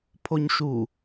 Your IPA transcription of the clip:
pʰoɲʃu

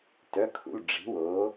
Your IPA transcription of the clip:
tœ˩˧˩kʰṵ˩˧˩l ɖ͡ʐi̤˩˥woː˩˥

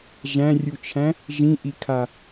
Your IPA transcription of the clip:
ʒæ̃rʲut͡ʃʰæ̃ | ʒĩʔikʰa

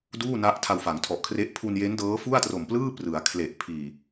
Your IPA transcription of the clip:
duː˥˩na˦˥ʔ tʰa˧wfa˩˦ŋtʰɔ˨˩ʔkʰre˦˥ʔ pʰu˧nje˦˥ndɤː˦˥ fu˥˩a̯tro˨˩m plɯː˥˩prɯ˩˦a̯ kʰle˨˩ʔ pʰiː˨˩

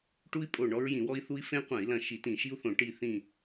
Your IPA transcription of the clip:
ʈu˦i̯pʼo˧˩ ɳɔ˦ɹjĩ˧˩˧wɔ˦i̯ θu˦i̯ fẽ˦qʷɐ̃˧˩˧i̯lɐ̃˧˩ ʃi˧˩˧tĩ˧˩˧ʃi˦u̯θõ˧˩˧ ʈi˧˩θĩ˧˩

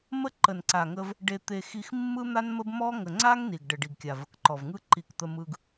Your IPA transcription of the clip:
mə˦ǃə˨nǀa˨ŋə˧v | ɖe˧t̪e˧ xi˧xmːɯ˦n̪a˦nmə˦b mɔ˦ ŋə˨ŋ͡ǀa˦ŋ ni˨ɡɖə˨ ɖi˨ɡkʲa˨və˨kǃɔ˨v ŋɯ˧ǃi˨k t̪ə˧mɯ˧ɡ

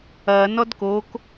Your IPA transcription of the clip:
ɐ nɔdkok

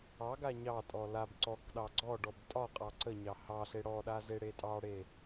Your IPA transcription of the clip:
ɑɡa ɲɑtʼɔ lab ǀɔkɗɑ ɡ͡ǀɔɖɔb tʼɒqʼɑ ǀəɲɑ hɑɬe ɽɔɗazeɽe tʼɑɽe

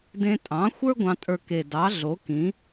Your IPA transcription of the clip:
dẽ˧tʼɑ̃˩˥xʷə˞˥ ɡʷɑ̃˧tʼə˞˧ke˨˩ dɑ˩˥ɮo˩˥kĩ˩˥

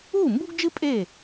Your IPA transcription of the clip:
uː˥˩mbu˥ɡ d͡ʒɨ˥ pʼe˥˩

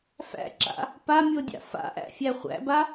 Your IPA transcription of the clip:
fæ̰ǁa̰ | pamʲodʲa̰ fa̰ʔæ̰fʲæ χʷæ̰ba

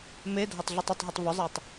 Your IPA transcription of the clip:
medʱɐtˤ ɮutˤɐtˤɦetˤ vʏzˤɛtˤ

